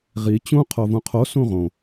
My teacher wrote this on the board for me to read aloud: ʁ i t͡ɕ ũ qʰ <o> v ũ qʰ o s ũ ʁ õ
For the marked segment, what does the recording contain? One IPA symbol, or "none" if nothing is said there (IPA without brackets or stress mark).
o